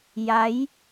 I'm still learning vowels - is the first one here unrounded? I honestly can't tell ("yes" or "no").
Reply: yes